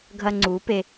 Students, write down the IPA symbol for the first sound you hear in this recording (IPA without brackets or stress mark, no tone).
ɡʱ